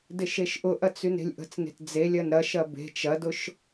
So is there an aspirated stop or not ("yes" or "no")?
no